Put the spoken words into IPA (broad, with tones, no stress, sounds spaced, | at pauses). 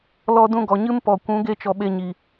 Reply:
l ɔ˧ d ũ˧ ɡ ɔ˨ ɲ ɨ˦ m p ɔ˨ kʷ ũ˨˦ ɡ e˧ t͡ʃ ɔ˨ ɓ e˧ ɲ i˨